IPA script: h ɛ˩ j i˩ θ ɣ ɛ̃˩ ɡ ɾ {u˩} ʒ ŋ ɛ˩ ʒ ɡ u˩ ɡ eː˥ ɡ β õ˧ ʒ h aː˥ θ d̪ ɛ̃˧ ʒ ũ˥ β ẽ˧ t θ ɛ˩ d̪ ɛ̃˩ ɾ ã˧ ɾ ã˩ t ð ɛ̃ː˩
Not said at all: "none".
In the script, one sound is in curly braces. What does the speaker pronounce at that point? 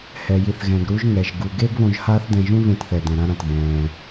u˧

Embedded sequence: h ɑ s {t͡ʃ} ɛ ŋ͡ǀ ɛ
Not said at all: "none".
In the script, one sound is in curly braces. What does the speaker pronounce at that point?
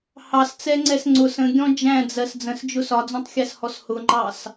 t͡s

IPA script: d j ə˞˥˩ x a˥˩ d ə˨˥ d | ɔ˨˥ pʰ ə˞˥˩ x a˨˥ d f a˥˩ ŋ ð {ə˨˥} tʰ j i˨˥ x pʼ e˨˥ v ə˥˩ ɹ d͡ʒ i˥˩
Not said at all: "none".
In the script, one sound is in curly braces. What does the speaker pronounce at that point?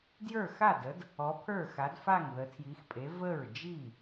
ə˨˥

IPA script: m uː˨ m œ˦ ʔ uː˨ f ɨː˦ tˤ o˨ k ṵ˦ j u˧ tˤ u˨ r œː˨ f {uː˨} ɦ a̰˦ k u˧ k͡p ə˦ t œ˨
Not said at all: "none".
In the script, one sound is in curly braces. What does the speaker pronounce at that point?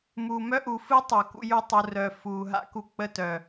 uː˨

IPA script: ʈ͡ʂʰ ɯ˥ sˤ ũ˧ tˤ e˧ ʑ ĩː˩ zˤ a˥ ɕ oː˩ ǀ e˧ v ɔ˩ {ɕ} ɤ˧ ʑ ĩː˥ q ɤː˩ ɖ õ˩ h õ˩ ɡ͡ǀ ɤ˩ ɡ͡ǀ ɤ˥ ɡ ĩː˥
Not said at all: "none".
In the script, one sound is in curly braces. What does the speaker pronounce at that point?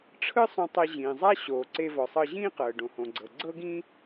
sˤ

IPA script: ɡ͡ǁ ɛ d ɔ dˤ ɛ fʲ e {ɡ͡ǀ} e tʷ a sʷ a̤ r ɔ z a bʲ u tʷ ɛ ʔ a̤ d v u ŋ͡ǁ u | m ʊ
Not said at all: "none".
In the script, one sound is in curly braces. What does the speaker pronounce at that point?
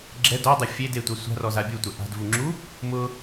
d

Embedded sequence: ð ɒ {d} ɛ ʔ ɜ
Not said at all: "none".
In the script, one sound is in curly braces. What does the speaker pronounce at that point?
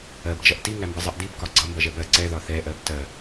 θ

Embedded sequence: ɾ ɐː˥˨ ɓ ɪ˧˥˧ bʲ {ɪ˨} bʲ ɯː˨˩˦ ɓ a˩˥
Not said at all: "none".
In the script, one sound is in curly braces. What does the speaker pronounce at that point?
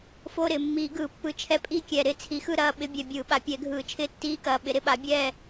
ɛ˨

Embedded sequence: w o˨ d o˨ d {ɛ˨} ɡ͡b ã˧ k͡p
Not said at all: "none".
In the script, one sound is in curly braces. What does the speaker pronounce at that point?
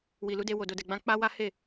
ɛ˨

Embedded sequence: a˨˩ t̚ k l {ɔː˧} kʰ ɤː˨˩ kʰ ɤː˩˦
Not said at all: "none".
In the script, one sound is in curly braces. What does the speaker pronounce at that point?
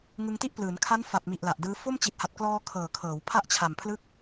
ɔː˧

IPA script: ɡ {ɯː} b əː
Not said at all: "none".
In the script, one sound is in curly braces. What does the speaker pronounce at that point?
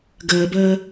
əː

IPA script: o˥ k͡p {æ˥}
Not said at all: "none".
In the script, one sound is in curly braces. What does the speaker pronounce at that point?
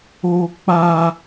a˥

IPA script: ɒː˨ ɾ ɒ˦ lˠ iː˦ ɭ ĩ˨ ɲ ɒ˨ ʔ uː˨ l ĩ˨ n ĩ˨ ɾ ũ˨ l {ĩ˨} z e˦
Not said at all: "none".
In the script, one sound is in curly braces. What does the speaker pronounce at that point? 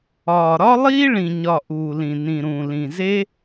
ĩ˨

